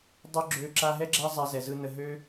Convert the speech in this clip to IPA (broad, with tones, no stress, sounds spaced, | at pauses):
dˤ ø˦ ɡ͡ǁ ø˧ ǁ a˧ ɦ ɛ˦ ɡ͡ǁ æ˦ zˤ a˧ z ɛ˨ z ɯ˧ n ə˧ ɦ ø˦